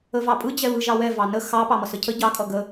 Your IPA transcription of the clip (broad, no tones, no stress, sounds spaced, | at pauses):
ə v ɑ pʼ ɯ d͡ʑ ɛ β ɯ ʒ ɑ w ɛ v ɑ n ə x ɑ p ɑ m ʌ s ə cʰ ə ɟ ɑ kʼ ʌ ɡ ə